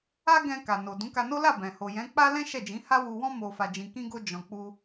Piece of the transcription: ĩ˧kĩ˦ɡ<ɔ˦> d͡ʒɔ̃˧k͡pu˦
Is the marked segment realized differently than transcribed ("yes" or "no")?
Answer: yes